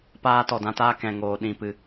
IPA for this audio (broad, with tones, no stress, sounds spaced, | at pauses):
p aː˧ t ɔ˨ d ã˧ t aː˧ k ɛ̃˨ ŋ oː˨ ɗ ĩ˨ p ɨ˨